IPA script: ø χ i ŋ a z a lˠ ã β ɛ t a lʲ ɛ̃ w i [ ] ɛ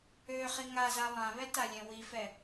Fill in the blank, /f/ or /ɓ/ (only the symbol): f